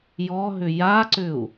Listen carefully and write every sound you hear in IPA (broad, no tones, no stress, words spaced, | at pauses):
jɔɦʏ jaǀʏu̯